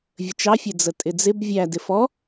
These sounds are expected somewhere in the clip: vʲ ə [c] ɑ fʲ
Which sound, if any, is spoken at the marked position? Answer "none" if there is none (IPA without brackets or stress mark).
t͡ʃ